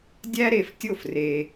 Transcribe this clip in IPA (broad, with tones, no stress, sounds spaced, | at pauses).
dʲ æ˥ ɾ e˧ f tʲ o˥˩ f r e˧